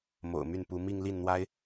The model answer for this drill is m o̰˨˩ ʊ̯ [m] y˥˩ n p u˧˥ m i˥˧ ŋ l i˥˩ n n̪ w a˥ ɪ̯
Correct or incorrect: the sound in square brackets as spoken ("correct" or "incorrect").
correct